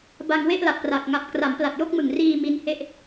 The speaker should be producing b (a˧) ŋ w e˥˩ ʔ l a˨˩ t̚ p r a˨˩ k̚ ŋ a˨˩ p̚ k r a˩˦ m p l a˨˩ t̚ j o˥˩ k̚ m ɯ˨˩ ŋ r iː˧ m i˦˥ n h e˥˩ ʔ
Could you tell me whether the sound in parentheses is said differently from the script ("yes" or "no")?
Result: no